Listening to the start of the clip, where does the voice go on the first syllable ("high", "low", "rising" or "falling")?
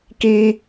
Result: high